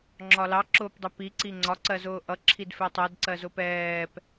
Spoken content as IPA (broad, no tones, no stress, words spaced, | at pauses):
ŋ͡ǁɒlɑ ǁʊːpdˤɛpi ǀiŋ͡ǀɒ ǀɜzʊːʔʌ ǁʰidfɛtˤɜd ǀɜzʊpɛːp